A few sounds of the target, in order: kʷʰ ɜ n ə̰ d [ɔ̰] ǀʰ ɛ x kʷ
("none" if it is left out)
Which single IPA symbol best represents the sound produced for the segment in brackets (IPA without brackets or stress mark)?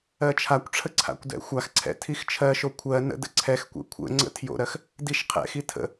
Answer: ə̰